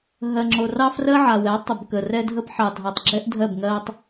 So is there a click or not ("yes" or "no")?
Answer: yes